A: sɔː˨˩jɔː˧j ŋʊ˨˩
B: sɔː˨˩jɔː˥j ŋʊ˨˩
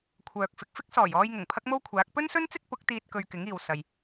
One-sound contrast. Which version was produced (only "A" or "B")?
A